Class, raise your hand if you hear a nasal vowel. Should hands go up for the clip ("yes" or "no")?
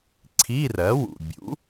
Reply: no